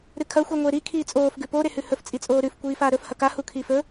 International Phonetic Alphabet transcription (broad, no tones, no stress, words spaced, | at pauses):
ɾɨkʰɐ xʷiŋʷeɾi kʰiːt͡sʼoːf ɡʉpo ɾehʉhɵf t͡sʼit͡sʼoːɾʉf kʷiːfaːɾɵf hɐka hukʰiːfɵ